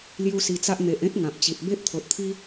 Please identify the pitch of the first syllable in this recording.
high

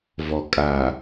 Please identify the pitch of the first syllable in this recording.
low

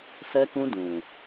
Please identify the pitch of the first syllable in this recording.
high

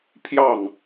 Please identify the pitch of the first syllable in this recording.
falling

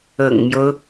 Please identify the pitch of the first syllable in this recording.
low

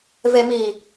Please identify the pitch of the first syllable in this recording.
low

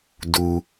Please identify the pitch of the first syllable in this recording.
low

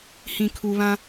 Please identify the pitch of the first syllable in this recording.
low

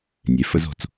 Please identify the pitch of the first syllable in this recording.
low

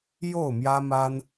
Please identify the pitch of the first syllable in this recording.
falling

